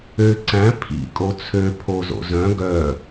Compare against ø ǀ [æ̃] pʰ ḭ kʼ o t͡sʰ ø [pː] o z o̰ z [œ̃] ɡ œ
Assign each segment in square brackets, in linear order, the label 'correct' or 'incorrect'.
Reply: correct, incorrect: pʰ, correct

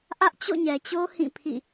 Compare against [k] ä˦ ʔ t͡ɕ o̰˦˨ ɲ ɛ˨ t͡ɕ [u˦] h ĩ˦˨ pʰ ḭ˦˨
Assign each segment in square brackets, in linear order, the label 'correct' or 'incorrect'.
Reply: incorrect: ʔ, incorrect: o˦

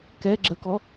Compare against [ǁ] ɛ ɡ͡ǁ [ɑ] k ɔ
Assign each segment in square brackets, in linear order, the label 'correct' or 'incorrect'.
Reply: incorrect: k, incorrect: ə

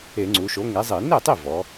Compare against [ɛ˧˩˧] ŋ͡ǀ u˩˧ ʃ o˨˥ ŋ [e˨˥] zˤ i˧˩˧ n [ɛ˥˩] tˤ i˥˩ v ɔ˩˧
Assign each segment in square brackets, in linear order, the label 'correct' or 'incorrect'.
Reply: incorrect: e˧˩˧, correct, incorrect: e˥˩

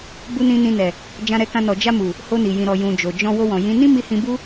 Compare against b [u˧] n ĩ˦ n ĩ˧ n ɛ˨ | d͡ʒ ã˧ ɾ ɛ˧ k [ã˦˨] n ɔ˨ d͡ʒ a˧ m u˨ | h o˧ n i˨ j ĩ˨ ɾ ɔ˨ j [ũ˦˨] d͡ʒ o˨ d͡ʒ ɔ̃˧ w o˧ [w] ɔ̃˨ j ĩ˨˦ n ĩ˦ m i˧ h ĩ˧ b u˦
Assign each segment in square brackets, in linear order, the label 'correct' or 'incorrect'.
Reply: incorrect: u˦, incorrect: ã˧, incorrect: ũ˨, correct

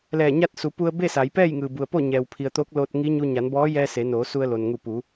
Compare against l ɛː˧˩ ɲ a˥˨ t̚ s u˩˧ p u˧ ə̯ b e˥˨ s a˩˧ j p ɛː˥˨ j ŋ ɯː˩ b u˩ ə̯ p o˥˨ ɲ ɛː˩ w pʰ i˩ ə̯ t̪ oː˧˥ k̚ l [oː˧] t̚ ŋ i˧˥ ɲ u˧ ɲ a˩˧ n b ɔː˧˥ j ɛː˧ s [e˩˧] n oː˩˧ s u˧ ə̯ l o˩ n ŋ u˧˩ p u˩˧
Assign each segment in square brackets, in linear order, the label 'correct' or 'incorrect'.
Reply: correct, correct

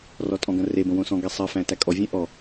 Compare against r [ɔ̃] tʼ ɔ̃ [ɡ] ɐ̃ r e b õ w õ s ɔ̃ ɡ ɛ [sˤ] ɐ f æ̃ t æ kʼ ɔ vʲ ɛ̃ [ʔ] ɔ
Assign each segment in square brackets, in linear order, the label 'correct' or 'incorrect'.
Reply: incorrect: ɔ, correct, correct, correct

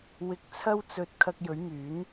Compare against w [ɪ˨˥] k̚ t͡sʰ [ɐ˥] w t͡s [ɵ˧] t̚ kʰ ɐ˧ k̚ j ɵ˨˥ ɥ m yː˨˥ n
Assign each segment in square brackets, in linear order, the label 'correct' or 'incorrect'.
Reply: incorrect: ɪ˧, correct, correct

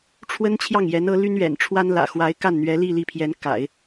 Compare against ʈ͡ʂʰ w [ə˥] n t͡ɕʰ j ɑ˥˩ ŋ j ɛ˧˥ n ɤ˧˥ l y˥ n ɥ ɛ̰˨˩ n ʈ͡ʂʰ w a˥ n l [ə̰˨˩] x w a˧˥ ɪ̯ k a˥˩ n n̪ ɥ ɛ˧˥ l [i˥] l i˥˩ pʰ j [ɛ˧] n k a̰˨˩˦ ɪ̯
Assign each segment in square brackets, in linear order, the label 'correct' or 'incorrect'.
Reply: correct, incorrect: ä̰˨˩, incorrect: i˥˧, incorrect: ɛ˧˥

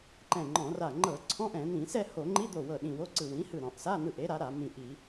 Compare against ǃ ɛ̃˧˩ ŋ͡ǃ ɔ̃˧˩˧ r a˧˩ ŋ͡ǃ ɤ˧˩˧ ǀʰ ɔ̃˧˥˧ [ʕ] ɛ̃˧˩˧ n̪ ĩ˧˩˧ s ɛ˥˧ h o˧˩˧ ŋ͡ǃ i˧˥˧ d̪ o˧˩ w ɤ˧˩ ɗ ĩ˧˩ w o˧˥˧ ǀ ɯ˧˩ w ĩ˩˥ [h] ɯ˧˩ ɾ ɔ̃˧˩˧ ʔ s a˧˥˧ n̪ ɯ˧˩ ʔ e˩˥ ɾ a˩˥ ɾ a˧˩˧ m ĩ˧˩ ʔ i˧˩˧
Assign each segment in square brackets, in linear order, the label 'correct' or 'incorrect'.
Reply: incorrect: ʔ, correct

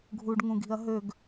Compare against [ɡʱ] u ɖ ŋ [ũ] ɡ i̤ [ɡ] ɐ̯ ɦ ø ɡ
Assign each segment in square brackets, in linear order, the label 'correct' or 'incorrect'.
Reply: correct, correct, incorrect: none

